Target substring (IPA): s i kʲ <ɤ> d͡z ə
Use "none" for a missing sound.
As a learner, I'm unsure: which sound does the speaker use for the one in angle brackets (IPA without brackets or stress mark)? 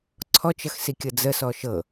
ɤ